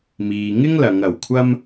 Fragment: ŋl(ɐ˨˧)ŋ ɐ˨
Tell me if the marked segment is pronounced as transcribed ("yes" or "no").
yes